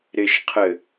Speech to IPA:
ɾɪʃqʰɘ

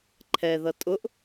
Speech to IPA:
ǃʰɛðʌ tʼʊʔ

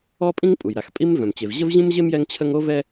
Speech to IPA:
ɔ˥pʼĩ˥ŋpʼu˩jɾa˩x pʼi˥mvœ̃˩mt͡ɕe˩v ʑə˥vʑĩ˥mʑe˥m jɛ˥ŋt͡ɕʰə˥ŋ o˥vɛ˥

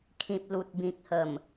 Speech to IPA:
kʰĩ˨p̚ lu˨t̚bĩ˨k̚hə˨˩m

